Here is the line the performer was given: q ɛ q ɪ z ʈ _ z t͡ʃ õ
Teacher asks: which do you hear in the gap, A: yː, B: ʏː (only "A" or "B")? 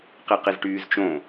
A